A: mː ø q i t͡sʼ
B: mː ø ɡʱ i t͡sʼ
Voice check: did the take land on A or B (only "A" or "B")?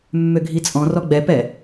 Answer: B